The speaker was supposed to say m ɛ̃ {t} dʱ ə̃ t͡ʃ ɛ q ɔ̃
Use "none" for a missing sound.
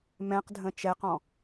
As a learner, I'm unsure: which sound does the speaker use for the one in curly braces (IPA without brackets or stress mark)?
q